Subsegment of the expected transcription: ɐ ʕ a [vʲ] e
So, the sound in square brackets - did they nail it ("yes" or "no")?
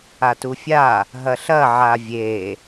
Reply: yes